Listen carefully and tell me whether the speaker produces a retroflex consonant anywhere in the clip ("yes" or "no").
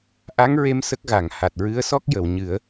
no